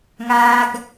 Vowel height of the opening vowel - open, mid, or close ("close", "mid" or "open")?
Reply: open